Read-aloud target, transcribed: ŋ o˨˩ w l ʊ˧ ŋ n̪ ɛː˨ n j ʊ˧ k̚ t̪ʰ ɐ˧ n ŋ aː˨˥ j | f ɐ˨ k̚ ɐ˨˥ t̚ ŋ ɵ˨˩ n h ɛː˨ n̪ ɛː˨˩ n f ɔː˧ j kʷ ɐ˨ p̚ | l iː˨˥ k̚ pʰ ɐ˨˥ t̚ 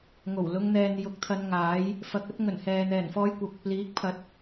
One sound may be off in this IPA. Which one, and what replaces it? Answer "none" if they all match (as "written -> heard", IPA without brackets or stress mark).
none